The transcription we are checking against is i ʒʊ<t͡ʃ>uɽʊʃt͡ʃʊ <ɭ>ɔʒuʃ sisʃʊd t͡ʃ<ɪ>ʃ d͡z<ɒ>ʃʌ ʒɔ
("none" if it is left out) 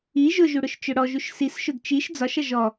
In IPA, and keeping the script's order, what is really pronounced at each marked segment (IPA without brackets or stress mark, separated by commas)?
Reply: ʒ, ɽ, i, ɒ